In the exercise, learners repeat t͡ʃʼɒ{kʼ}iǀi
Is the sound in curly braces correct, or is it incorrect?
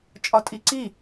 incorrect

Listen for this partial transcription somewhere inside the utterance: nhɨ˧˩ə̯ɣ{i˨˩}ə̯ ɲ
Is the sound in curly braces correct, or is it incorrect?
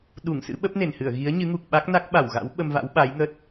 incorrect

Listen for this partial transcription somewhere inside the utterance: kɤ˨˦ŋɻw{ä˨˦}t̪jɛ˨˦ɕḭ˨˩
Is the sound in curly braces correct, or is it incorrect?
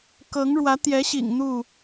correct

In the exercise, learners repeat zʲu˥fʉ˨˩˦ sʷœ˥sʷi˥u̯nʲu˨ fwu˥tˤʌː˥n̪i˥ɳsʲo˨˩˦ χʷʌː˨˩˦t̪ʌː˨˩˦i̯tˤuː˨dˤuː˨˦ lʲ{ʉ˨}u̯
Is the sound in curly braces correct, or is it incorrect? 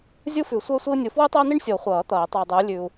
correct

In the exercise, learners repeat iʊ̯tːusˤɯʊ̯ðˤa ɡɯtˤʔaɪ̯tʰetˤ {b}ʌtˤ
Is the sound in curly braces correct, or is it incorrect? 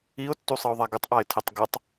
incorrect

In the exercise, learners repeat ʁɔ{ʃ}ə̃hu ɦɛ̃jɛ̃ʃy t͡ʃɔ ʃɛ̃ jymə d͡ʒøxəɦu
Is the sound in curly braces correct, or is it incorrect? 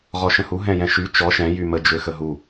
correct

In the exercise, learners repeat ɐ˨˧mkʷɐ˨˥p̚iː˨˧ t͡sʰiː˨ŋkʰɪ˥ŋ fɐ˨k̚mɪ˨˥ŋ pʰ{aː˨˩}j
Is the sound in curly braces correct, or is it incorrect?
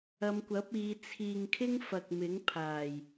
correct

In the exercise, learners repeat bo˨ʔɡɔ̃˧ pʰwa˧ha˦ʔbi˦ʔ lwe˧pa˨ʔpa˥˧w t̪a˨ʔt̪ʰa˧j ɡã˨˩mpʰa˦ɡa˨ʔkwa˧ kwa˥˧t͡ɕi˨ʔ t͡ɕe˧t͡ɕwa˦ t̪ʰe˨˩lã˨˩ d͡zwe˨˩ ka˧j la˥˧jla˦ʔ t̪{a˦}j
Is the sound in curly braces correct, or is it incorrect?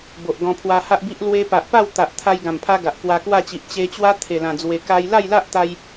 incorrect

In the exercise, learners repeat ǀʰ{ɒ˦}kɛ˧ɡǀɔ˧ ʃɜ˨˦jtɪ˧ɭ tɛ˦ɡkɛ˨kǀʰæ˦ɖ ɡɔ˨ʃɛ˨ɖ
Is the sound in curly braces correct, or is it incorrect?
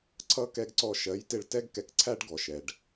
incorrect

